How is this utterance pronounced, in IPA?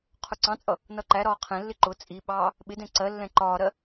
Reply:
qʰ ʊ ǀ ɑ̃ t͡sʼ ʌ | n ʌ ǃ æ ɾ ɒː qʰ ɛ̃ lː ɪ ǃ ʊ t͡sʼ i ɓ ɑː | ɓ ɪ d ɛ̃ ǀ ɜ lː ɛ̃ ǃ ɒː ɾ ɜ

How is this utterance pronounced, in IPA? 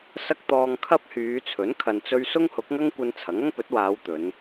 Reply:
s ɐ˥ k̚ t̪ ɔː˧ ŋ kʰ ɐ˥ p̚ h yː˨˧ t͡sʰ ɵ˨˥ n kʰ ɐ˨ n t͡s ɵ˧ ɥ s ʊ˥ ŋ h ʊ˨˥ k̚ ŋ ɐ˥ ŋ kʷ ɐ˧ n t͡sʰ ɐ˨˥ ŋ ɐ˥ ŋ p ɵ˨˥ t̚ w aː˨˧ w t̪ ɵ˨˧ n

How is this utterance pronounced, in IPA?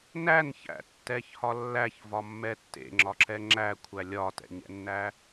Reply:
n æ n ç æ̰ tː ɛ ç h ɒ lː æ ç v ɒ mː ɛ tː ḛ ŋ͡ǁ ɒ ǁ ɛ ŋ͡ǁ æ kʷʰ æ lʲ ɒ t ɛ̰ ɲ ɛ̰ nː æ

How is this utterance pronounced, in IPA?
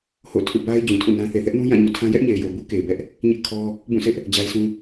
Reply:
h o̰˦˨ tʰ ṵ˦˨ b a˦ ɪ̯ d͡ʑ ũ˨ tʰ ṵ˦˨ n ã˦ θ e˨ θ ɛ˦ ʔ n ũ˦ j ã˦˨ ɲ ṵ˦˨ tʰ ã˦ j ɛ˦ ʔ ɲ e˨ ɪ̯ j o˨ b u˦ k e˨ ɪ̯ b ɛ˦ ʔ | ɲ ɪ˦ ʔ kʰ ɔ˦ | b ũ˦˨ s ɪ˦ ʔ | d͡ʑ a˦ ɪ̯ s ũ˦

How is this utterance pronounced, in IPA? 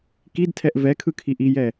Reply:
k i d tʰ ɛ ʔ v ɛ kʰ ɯ kʰ i ʔ i j ɛ

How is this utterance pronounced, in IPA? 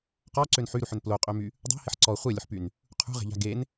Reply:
q ɔ ǀ ø n ħ y ɾ u ħ ʏ n p l o qʼ ø m y | dˤ o̤ h ɪ ħ ǀ ɔ χʷ e lʲ ʊ ħ p y n | qʰ ṳ ʁ e̤ ʎ a̤ ɡ e n

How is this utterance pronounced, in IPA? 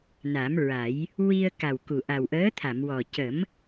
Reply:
n a˨˩˦ m ɹ a˨˩˦ j | w i˧ ə̯ k a˨˩ w k u˨˩ ʔ a˨˩ w ʔ əː˧˥ t̪ʰ a˨˩˨ m w ɔ˨˩ c ə˨˩˦ m

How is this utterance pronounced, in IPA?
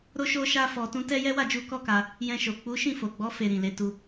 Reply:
ɾ o˦ ʃ o˦ ʃ a˦ f ɔ˧ t ũ˦ t ɛ˦ j ɛ˦ w a˦˨ d͡ʒ u˧ k ɔ˦ k a˧ | j ɛ̃˧ ʃ o˨ k͡p u˨˦ ʃ ĩ˦˨ f o˨ ɡ͡b ɔ˨˦ f e˧ ɾ ĩ˨ l e˨˦ t u˧

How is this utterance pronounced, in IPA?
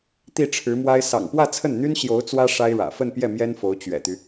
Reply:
t̪ i˥˩ ʈ͡ʂʰ ɻ̩˧˥ m w a˥ ɪ̯ s ɑ̰˨˩ ŋ p w ä˥˧ t͡sʰ ə˥˩ n n̪ y˥ n ɕ j o˧˥ ʊ̯ t͡s w ä˥ ʂ a˥ ɪ̯ ɻ ä̰˨˩ f ə˥˧ n p j ɛ˥˩ m j ɛ˥ n f o˧˥ ʊ̯ t͡ɕ ɥ ɛ̰˨˩ t̪ y˦

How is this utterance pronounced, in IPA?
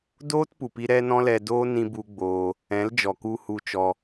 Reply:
d oː˦ t p u˨ p i˧ ɾ ɛ˦ n ɔ̃˦ l ɛ˧ d oː˦ n ĩ˧ b u˧ ɡ͡b oː˧ | ɛ̃˨˦ l d͡ʒ ɔ˨ k u˧ h u˧ t͡ʃ ɔ˧

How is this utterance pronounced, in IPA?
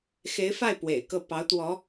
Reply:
x e˧˥ ɪ̯ f a˥˩ ɪ̯ p w ḛ˨˩ ɪ̯ k ɤ˥˩ p ɑ˧˥ ʊ̯ t̪ w ɔ˧˥

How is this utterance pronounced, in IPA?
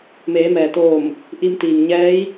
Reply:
m eː˩˧ m ɛː˩ t̪ oː˧˩ m | ʔ i˧ m t̪ iː˩ ŋ ɲ ɛː˧˥ j

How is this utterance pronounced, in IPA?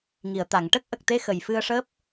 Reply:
ŋ i˨˩˨ ə̯ t̪ a˨˩˨ ŋ ʈ ə˦˥ k̚ ʔ ə˨˩ k̚ t̪ e˧ x ə˨˩ j f ɨ˧ ə̯ ʂ əː˦˥ p̚

